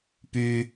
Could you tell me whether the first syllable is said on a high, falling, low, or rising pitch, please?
high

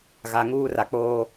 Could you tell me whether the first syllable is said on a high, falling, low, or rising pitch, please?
low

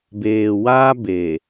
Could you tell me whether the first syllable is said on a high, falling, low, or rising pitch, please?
low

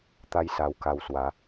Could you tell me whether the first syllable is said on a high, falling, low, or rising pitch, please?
high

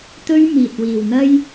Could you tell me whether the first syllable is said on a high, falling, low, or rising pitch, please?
high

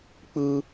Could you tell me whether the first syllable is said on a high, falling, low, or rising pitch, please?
high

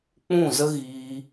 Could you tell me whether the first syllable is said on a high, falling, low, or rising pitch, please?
falling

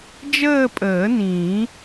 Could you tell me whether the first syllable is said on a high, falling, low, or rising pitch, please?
falling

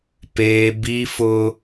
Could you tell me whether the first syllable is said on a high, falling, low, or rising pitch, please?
high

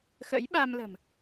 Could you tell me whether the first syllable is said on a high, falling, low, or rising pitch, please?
rising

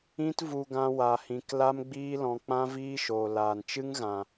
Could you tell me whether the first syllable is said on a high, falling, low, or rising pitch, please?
high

